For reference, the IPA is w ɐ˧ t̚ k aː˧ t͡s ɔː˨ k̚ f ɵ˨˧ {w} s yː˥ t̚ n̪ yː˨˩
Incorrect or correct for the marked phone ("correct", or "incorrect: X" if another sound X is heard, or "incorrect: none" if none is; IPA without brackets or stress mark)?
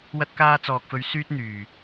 incorrect: ɥ